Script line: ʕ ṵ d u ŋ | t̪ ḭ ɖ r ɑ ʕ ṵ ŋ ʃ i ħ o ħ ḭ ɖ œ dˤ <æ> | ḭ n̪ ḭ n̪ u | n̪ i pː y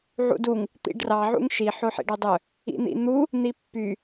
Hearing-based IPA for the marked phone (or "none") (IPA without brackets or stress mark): œ